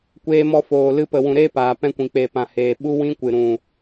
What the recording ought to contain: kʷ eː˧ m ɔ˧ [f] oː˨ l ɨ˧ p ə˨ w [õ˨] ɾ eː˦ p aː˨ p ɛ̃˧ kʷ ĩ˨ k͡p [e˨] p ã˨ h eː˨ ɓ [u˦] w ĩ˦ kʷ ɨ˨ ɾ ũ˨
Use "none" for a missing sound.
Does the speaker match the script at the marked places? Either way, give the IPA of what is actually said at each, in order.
f, ũ˨, e˨, u˦

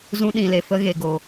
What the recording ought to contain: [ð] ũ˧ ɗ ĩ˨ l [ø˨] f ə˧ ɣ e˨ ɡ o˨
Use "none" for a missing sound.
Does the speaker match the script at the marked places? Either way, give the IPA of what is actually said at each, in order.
z, e˨

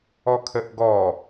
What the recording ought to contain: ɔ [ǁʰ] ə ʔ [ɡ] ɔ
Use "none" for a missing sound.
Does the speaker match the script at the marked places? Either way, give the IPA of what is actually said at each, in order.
kʰ, ɡ

